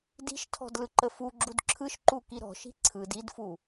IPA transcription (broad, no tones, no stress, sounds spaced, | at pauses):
d i̤ ʃ tʰ ɔ̤ d l ɯ ǃ ə f u ɡ͡ǁ u d ǁʰ ɯ ʃ ǃ u k i ɾ ɔ̤ ʃ i̤ ǀʰ ɯ d i d f u